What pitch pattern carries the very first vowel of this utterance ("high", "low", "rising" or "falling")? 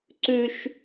high